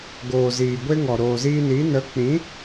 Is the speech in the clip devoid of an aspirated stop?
yes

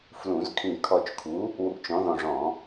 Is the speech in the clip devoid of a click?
yes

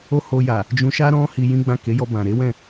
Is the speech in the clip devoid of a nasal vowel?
no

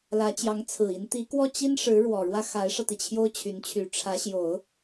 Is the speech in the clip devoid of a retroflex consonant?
no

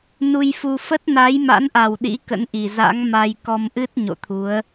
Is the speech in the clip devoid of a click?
yes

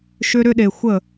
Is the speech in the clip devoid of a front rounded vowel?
no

